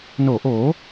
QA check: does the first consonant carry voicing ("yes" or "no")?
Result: yes